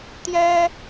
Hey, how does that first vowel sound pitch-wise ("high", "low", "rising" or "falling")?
high